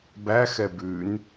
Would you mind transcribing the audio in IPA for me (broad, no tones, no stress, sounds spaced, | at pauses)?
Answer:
b æ x ɛ b ʉ n